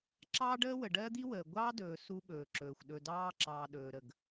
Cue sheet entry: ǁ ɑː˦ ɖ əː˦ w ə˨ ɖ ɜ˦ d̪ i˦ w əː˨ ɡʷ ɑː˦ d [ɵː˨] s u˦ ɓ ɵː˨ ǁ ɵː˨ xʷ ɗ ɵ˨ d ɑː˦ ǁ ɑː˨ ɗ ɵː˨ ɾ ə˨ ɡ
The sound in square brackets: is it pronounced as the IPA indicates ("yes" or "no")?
yes